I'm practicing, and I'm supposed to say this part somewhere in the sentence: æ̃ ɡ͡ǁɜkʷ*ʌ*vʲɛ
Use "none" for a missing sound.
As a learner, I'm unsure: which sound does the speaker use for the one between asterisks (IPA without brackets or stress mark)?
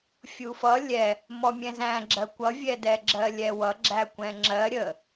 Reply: ʌ